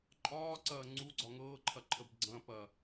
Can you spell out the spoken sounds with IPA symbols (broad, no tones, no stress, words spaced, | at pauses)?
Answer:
ǃʼɒːǀɐː ŋ͡ǀuɡ͡ǀɒ ŋɤːǃʰɐǃʰəb ɡ͡ǀɐ̃ pɐ